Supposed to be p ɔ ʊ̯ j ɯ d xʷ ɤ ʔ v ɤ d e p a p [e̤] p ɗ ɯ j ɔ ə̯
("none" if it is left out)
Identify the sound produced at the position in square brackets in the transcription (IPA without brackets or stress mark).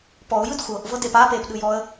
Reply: e